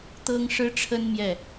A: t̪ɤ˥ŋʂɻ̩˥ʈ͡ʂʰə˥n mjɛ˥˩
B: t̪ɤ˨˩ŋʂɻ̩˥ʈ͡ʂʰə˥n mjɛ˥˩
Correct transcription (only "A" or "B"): A